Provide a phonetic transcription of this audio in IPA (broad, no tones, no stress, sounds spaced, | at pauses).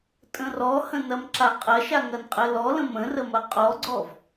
tʼ ə̃ r ɔ h ə̃ n ɐ m ǁ a qʼ ɐ ʃ a ŋ ɐ n qʼ ə l ɔ l ə̃ m ə̃ r ə m ɐ qʼ ɔ ɡ͡ǀ ɔ v